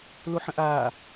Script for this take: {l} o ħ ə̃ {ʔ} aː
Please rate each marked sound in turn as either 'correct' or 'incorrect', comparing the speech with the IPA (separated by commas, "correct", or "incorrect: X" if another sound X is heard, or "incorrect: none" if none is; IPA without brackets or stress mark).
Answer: correct, correct